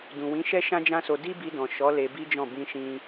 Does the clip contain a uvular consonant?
no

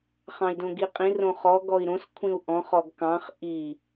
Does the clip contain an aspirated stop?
yes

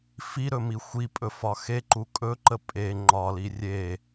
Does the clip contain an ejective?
yes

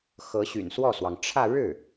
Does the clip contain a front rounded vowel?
yes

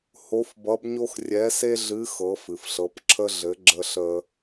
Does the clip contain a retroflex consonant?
no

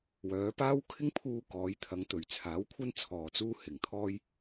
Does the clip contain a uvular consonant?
no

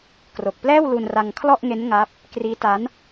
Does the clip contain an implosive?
no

